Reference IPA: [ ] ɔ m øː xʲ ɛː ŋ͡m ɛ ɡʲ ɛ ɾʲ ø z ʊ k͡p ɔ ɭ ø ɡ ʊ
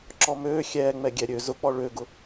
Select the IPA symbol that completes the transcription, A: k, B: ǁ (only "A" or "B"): B